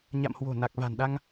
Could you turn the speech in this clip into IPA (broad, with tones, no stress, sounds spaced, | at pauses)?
ɲ a̰˧˨ m h w o̤˨˩ n a˨˩ k̚ v a̤˨˩ n ɗ a˧ ŋ